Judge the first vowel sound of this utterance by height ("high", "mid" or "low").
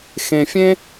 mid